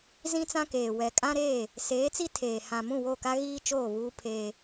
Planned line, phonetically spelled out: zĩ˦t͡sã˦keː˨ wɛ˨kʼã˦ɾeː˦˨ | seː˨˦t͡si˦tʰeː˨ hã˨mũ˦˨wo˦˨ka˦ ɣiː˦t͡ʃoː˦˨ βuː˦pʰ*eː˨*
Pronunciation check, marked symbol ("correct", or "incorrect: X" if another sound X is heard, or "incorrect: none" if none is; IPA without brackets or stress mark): incorrect: eː˦